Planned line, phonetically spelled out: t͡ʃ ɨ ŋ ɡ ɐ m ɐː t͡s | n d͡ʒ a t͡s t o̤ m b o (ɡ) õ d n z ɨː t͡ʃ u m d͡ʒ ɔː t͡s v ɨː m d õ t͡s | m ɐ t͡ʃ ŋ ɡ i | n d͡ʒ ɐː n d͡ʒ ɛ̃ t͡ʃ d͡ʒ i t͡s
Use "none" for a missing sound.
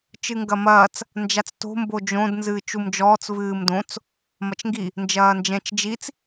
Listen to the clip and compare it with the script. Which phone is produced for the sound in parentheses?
d͡ʒ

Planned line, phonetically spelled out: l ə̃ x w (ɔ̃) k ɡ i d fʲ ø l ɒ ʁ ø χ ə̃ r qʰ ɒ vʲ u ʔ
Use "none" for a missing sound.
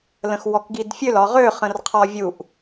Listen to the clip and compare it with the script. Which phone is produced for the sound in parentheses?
ɔ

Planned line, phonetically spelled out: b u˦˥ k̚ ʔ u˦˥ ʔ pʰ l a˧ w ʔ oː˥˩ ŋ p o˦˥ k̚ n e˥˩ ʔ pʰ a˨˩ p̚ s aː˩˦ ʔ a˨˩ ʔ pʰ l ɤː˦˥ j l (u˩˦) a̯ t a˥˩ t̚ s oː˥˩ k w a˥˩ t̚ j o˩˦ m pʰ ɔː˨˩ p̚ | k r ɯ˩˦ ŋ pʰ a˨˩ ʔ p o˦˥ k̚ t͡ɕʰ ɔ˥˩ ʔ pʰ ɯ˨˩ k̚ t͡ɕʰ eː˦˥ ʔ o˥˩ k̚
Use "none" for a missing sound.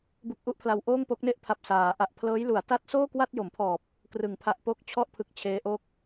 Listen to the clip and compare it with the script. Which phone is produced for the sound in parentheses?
u˩˦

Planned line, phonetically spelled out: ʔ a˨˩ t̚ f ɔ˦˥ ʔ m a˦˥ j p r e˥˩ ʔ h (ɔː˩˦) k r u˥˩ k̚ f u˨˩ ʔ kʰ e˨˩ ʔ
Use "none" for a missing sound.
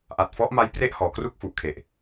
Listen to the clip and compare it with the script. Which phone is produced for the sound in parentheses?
ɔː˩˦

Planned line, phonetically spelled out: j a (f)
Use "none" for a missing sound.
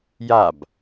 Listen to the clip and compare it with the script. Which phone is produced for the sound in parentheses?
b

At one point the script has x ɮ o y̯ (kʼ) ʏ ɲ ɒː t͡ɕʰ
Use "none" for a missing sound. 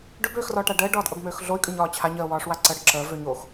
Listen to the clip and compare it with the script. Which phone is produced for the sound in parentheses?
kʼ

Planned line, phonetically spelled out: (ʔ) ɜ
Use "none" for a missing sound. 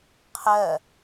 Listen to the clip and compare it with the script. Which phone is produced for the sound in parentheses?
qʰ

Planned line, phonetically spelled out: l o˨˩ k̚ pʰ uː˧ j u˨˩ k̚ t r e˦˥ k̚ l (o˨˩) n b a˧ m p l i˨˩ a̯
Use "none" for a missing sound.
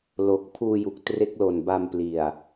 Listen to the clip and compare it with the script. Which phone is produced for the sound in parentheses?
o˨˩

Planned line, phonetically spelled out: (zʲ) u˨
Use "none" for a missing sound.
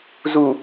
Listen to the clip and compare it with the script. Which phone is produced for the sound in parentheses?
z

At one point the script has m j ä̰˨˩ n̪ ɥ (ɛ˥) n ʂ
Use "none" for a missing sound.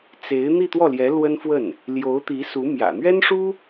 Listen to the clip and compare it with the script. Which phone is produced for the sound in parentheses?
ɛ˥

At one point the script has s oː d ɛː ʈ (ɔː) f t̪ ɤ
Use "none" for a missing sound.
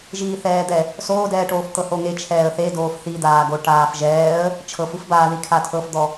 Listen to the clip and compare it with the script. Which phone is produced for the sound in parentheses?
oː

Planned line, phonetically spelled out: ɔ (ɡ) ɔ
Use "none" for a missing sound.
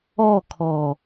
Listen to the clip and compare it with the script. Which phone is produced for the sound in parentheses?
kʰ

